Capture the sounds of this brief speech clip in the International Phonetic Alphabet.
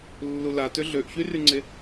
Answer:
lːulatø ɮøʔçyryŋ͡ǀe

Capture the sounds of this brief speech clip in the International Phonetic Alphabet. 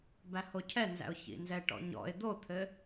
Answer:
bæhocʰɛnzæ̰ʊ̯ çḭnzɛʈɔ̰ɲɔ̰ɪ̯ d̪ot̪ʰɘ

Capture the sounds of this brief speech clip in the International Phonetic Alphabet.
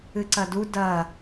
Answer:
ɨǀɐdu dɐː

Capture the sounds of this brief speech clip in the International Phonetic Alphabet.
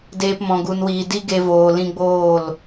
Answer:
deː˧pmɔ̃˨ ɡu˨nwiː˨ di˦ɡe˧voː˨ lĩ˧ɡ͡boː˦˨l

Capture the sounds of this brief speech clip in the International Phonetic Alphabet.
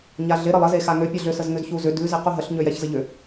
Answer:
ɲaɮɪ ɾəlˠə zexaŋø pʲɛɮʏ səzŋʏzçuzʏ dʉ zequɦəɬ ɲøjɛçzəʎʏ

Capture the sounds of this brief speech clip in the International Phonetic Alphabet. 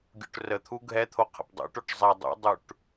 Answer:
ɡʲṵʈrət̪ʰu ɡʱɛt̪ʰo qʰə̰pdˤṵʈoʈ zˤɛ dˤṵdˤuʈ

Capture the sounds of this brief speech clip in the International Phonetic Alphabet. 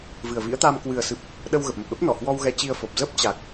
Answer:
vɨ˨˩ə̯vḭ˧˥ə̯t̪aː˧m kwɨ˨˩ə̯sɨ˨˩p̚ | ɗə˧wɣə˨˩p̚mə˨˩p̚ɗə˦˥p̚ nɔ˧˩hwɔ˧wɣɛ˨˦ t͡ɕi˧ə̯fo˨˩p̚ zə˦˥p̚t͡ɕa˨˩k̚

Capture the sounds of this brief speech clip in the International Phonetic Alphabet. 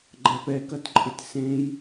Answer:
ɡ͡ǃæpɛkɐtǃʼɪt sẽj

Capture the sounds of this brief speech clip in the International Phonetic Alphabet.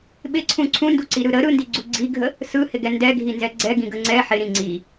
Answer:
ɓɪǀʰũ ǀʰũnduǀiɾɯ ɾə ɾɯndiɡ͡ǀu ɡ͡ǀiɡʱə | sɯhɪɡɛ ndɛɡʱinzɛ ɡ͡ǀɛɡĩɡə ŋ͡ǀɛ ħɪɾĩ ŋ͡ǀi

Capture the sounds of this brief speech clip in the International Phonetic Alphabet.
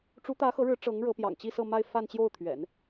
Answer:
ʈ͡ʂu˧˥t̪ä˧˥ xɤ˧˥ɻɻ̩˧˥ ʈ͡ʂɤ˧˥ŋ ɻɤ˧˥pjɑ̰˨˩ŋt͡ɕi˥˧ sɤ˥˧ma˥˧ɪ̯ fa˥˧nt͡ɕjo˥˩ʊ̯t̪ʰɥɛ̰˨˩˦n

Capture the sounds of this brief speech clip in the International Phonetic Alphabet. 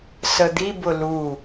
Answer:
səd̪ibʊ lu

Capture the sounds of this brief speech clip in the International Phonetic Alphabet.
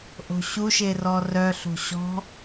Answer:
ʔo̤ɕuʃe rɔrœɬo̤ ɕɔ̤

